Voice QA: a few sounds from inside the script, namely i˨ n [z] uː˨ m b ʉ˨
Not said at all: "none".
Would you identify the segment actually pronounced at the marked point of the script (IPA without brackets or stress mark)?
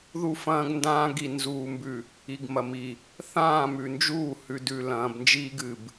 z